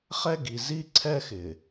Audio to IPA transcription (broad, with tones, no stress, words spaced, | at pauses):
χɛ˦ ɡi˨ zi˦ǀʰɛ˦xɪ˨